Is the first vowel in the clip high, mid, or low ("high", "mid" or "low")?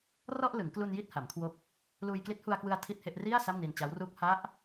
mid